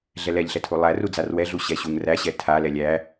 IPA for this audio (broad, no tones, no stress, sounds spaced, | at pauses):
ɮ ɛ l ɛ ʎ ɬ ɛ tʰ u lˠ æ r u d͡z a r w ɛ ɮ u ɕ ɛ ɕ u ŋ r æ ɕ ɛ tʰ a l ɛ lʲ æ